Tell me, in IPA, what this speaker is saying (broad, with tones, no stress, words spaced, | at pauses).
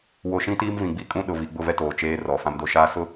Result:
wo˨ʃĩ˦ tiː˦mvĩ˨ɡ͡bi˦ kʼũ˦ ɗʊ˨vi˨ ɡ͡bʊ˦˨vɛ˦ toː˨t͡ʃeː˦rɔ˨ fã˦mdo˦ʃaː˦ sʊ˦